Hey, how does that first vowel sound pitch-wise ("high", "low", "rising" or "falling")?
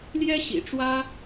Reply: high